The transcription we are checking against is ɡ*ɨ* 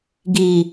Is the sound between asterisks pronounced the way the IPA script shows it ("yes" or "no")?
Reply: no